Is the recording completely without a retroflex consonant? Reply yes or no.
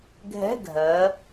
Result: yes